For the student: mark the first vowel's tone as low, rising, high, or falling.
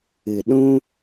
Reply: low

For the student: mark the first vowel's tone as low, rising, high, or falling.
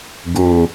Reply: low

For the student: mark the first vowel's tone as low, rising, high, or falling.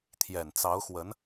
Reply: low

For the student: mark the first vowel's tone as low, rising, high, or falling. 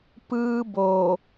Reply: high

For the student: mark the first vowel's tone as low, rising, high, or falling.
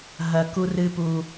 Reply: low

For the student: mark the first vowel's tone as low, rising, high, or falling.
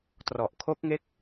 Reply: low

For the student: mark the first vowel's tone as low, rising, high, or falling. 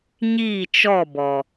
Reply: falling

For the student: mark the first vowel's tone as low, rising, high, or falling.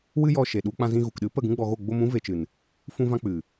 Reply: high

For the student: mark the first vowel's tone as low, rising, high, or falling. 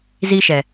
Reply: high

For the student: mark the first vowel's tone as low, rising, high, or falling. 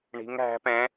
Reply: rising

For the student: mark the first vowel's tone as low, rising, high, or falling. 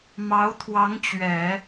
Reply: rising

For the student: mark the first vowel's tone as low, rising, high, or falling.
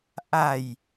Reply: low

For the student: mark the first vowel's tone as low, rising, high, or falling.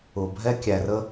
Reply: low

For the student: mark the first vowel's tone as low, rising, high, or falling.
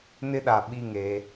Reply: high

